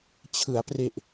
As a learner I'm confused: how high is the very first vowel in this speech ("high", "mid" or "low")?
high